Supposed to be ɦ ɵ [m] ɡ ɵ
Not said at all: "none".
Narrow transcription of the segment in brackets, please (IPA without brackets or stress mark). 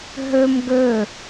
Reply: m